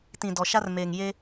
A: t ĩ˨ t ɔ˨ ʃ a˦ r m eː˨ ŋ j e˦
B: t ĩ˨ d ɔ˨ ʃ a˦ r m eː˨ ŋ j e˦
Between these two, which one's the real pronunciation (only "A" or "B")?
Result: B